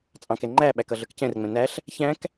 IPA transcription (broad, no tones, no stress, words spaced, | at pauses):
t͡sʼɑ̃kɛ ŋ͡ǃæɓæk ʌɮə˞kcɛ̃rŋ͡mɛ̃ næɬ | çæ̃k